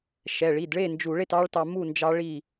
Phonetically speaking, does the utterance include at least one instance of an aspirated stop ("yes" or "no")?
no